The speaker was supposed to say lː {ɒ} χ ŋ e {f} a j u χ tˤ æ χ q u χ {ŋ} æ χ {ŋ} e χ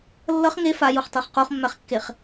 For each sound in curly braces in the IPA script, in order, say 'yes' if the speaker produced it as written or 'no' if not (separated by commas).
no, yes, no, no